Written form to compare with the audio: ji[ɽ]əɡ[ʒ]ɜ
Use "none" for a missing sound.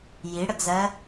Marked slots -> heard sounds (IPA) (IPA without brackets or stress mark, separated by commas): ɽ, z